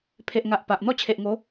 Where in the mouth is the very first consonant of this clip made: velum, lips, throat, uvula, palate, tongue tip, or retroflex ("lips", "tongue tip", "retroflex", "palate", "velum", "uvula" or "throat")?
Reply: lips